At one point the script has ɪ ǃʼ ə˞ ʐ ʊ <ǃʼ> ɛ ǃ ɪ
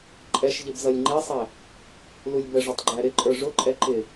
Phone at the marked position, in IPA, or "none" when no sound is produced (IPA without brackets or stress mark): ǃʼ